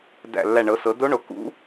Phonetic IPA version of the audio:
dæ̰˧˩lːæ˧˩ɳɤ˩˧sɤ˩˧ do˧˥ɳo˩˧ kṵ˧˥

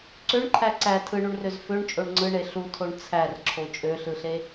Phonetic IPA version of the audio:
ǀøɳǃʰæ ǀæ tʰɯɳuɳrøz føɳt͡ʃʼoɳ ŋ͡ǀɯɳe ɬutʰoɳ t͡sʰærǁʰo t͡ʃʼøɬɯɬe

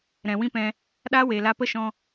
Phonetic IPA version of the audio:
ɾɛ̃˨wĩ˦pɛ̃˧ | ɗa˦we˨ la˧pə˦ʃɔ̃˧

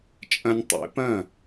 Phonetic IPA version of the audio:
t͡ʃʼɐ̃˧nʲtˤḛ˩˥pɐ̃˥˩

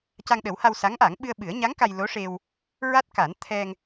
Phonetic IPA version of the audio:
ca˧ŋɗə˨˩˦wha˧w sa˧˥ŋʔa˨˩˦ŋ ɓɨ˧ə̯ɓɨ˨˩˦ə̯ɲa˧˥ŋ ka˧jlo˧˥ʂe˧w | ɹa˦˥t̚ka˨˩˦n t̪ʰɛ˧ŋ

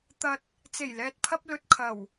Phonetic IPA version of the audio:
t̪ɐ˧t̚ | t͡se˨˩jlɛː˨t̚pʰɐ˧p̚ lɵ˨t̚ kʰɐ˨˩w

